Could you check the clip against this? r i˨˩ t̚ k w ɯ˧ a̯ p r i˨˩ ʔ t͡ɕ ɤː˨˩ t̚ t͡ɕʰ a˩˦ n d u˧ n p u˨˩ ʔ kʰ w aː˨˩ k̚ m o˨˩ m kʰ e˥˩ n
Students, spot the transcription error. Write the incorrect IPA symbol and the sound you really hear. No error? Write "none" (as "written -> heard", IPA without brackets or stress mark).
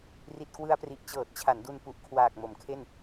none